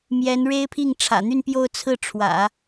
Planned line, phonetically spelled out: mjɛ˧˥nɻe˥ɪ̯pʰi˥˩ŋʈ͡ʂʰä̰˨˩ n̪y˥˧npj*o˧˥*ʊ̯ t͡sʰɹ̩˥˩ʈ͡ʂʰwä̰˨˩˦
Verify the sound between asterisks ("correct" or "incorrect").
incorrect